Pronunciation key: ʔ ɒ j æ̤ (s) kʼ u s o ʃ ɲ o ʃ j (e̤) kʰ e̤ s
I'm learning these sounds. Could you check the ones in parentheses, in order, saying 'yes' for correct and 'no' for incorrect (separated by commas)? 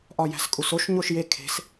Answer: yes, no